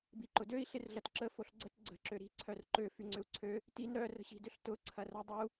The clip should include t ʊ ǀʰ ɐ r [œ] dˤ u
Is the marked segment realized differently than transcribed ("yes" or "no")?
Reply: no